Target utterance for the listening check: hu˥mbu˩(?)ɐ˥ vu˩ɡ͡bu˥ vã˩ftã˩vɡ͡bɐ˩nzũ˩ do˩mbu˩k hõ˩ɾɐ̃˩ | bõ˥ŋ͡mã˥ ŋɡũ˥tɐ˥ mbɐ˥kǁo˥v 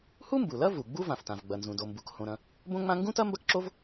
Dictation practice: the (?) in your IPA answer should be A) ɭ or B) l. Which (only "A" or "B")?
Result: B